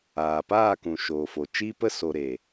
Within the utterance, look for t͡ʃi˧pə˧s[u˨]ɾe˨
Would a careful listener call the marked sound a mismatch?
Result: yes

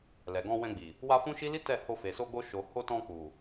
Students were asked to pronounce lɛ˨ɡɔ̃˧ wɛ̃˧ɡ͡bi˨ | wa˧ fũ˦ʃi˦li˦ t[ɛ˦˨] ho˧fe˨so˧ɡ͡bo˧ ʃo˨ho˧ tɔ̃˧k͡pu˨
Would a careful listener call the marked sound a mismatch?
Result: no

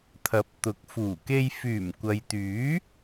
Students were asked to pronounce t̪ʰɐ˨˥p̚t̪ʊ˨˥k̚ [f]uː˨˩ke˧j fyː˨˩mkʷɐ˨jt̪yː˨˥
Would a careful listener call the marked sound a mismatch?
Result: no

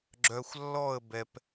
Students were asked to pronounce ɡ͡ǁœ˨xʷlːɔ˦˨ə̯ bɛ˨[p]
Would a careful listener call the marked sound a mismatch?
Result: no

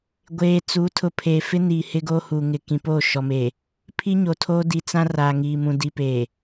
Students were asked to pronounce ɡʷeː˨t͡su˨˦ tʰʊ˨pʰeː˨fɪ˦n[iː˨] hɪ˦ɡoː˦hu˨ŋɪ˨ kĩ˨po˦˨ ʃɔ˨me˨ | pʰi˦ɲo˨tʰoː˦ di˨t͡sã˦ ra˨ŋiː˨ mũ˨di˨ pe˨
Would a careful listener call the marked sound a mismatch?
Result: no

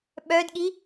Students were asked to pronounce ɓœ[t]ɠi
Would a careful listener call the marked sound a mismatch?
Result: yes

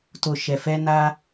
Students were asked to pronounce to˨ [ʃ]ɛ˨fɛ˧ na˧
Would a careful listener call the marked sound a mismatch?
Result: no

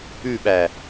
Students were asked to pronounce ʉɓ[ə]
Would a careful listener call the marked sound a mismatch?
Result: yes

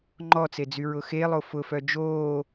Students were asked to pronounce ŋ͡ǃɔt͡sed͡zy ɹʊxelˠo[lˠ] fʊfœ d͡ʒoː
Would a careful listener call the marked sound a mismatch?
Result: yes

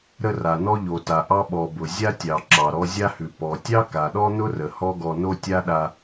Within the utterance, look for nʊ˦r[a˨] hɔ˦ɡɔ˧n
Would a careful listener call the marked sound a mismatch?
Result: yes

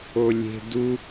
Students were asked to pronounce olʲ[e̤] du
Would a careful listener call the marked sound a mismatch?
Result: no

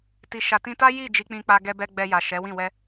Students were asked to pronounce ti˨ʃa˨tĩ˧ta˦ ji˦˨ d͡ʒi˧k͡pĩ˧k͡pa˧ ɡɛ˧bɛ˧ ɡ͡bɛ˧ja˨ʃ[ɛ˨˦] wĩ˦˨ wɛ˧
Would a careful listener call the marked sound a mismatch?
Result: no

